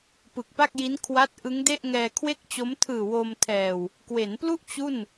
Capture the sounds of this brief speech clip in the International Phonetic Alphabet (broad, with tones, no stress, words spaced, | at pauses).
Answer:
pɯ˨˩k̚pa˥˩k̚ji˦˥nkʰwa˦˥t̚ ʔɯ˦˥ŋde˥˩ʔ ŋɛː˧kʰwe˥˩k̚t͡ɕo˦˥m tʰɯː˨˩ wo˧mtʰɛː˨˩w | kwe˩˦nplu˥˩ʔ t͡ɕu˥˩n